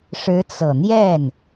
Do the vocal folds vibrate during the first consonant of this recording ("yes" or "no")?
no